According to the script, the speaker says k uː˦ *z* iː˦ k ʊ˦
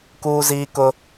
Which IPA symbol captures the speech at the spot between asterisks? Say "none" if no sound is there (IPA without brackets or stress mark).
z